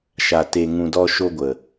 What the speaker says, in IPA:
ʃ a˨ t e˨ ŋ ũ˨ d ɔ˧ ʃ o˧ ɡʷ ə˨

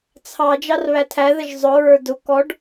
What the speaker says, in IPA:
t͡sʰ ɑ d͡ʒ ɑ r β æ tʰ æ ð ə ʒ zˤ ʊ ɹ ə˞ d ʊ k ɔ ɖ

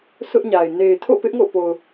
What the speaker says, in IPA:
sʰ ʊ˦ ʔ ɲ a˨ ɪ̯ n e˨ ɪ̯ tʰ o̰˦˨ p ɪ˦ ʔ ŋ o̰˦˨ p o˨ ʊ̯

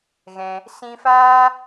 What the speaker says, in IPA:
ɣ ɛ̃˦ | s ĩ˧ f aː˦

